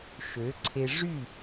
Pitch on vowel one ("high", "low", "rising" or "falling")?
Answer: rising